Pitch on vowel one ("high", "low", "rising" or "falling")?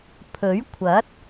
rising